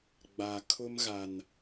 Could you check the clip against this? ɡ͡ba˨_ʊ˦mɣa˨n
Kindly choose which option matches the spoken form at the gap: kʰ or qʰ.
kʰ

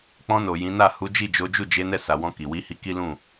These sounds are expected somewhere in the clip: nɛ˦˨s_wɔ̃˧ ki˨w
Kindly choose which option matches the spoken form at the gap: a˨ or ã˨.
a˨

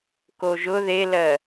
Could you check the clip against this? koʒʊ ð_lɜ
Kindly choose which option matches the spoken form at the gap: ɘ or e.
e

